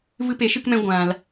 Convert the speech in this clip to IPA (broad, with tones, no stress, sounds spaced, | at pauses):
v ɨ˧ p e˨˦ ʃ ɨ˧ k m ɛ̃˧ ɡʷ ã˧ l